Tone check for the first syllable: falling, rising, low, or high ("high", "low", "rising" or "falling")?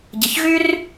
low